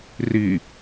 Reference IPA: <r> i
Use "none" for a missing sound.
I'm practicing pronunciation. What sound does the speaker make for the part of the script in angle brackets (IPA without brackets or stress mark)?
r